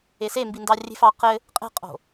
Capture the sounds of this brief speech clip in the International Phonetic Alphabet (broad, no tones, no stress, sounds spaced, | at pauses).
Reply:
e s e m b i n d ɑ rʲ e̤ f ɑ q ɘ | qʼ e̤ qʼ o̤